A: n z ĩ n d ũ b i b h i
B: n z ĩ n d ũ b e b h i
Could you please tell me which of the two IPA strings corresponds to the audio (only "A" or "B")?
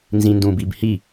A